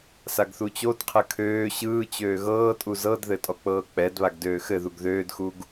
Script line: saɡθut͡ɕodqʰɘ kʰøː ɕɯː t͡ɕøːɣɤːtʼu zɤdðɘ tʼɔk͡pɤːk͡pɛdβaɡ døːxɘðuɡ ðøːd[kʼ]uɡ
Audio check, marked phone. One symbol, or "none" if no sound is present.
x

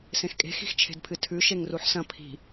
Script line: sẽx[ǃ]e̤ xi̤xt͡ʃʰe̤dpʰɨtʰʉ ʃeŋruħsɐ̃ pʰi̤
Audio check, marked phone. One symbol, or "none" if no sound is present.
kʼ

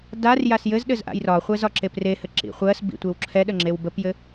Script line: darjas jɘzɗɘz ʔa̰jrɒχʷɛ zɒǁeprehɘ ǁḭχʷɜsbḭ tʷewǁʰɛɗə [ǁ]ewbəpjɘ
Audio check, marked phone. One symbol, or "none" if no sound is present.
ŋ͡ǁ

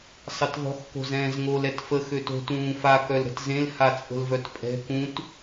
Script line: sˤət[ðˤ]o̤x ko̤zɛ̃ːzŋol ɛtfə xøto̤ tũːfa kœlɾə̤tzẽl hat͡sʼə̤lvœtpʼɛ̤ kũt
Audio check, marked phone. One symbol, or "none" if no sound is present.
ðˤ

